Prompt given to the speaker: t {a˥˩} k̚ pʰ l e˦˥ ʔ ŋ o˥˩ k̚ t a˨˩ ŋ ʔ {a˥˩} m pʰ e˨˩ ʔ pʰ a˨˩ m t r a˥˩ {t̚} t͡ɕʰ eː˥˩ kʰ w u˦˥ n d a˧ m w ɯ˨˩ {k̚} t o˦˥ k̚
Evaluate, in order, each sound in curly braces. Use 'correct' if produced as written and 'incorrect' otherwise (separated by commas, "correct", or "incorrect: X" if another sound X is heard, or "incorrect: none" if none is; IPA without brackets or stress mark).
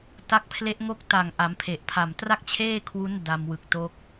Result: incorrect: a˦˥, incorrect: a˩˦, incorrect: k̚, correct